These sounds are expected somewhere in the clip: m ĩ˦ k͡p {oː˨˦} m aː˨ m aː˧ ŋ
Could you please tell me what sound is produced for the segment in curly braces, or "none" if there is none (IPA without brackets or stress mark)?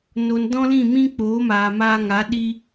oː˨˦